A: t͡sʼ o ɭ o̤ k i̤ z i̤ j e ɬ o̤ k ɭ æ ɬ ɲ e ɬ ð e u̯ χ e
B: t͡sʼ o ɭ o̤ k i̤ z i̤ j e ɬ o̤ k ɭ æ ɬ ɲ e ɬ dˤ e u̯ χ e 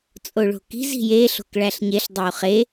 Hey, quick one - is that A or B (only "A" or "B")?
B